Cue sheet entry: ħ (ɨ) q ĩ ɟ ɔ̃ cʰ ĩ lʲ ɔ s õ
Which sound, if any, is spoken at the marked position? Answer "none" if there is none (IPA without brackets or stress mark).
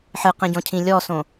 ɨ